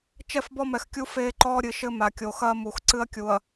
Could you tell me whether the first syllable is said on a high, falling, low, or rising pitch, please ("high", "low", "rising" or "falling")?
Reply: falling